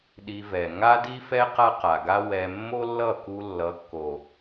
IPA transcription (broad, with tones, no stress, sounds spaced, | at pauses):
ɗ i˧ v ɛ˨ ŋ a˦ d i˦ f ɛ˦ q a˦ q a˨ ɡ a˦ w ɛ˧ mː o˦ lː ʌ˦˨ k u˧ lː ʌ˨˦ kː o˨